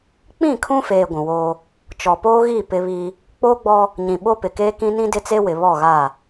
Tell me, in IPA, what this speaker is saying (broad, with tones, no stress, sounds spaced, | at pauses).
k͡p ĩ˦˨ kʰ ũ˦ f eː˨ ɡʷ ũ˨ w oː˦ | t͡ʃ ɔ˨ p oː˦ ɣ i˦˨ p ɪ˦ β i˦ | k͡p oː˦ ɡ͡b ɔ˦ | ɲ ĩ˨ ɓ o˦ p ɪ˨ k eː˦ k ĩ˦ n ĩ˦ d ɪ˦ t͡s e˦ w ɪ˨ β ɔ˦˨ ɣ a˦˨